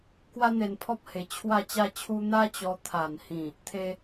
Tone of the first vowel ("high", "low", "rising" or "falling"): high